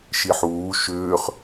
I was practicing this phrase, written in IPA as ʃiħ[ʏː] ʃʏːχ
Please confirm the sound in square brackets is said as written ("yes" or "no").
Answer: no